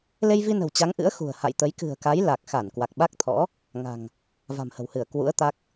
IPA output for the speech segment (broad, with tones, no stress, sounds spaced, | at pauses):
l e˧ j v i˧ n ə̤˨˩ w t͡ɕ a˨˦ ŋ ʔ ɨ̰˧˥ ə̯ x ṳ˨˩ ə̯ h a̰˧˨ j t̪ ə˨˦ j k ɨ̤˨˩ ə̯ k a˨˦ j l a˨˩ k̚ x a˧˩ n k w a˨˩ k̚ ɓ a˦˥ k̚ t̪ʰ ɔ̰˧˥ | ŋ a̤˨˩ ŋ | v a̤˨˩ m h ə̤˨˩ w h ɨ˧˩ ə̯ k w ṵ˧˥ ə̯ t̪ a˦˥ k̚